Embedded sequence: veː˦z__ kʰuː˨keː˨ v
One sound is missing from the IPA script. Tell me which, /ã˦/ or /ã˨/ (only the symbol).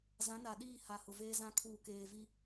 ã˦